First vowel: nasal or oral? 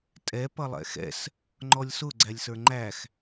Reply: oral